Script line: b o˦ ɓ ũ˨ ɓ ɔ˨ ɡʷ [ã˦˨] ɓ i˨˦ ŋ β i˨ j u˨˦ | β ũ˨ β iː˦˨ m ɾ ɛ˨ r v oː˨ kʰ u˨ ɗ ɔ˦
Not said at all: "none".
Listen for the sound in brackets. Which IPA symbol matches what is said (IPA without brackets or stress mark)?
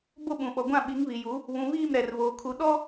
ã˦˨